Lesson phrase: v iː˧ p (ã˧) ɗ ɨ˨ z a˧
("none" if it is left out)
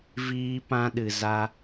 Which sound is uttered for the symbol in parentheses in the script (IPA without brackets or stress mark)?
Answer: ã˧